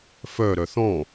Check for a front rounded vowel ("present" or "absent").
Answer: present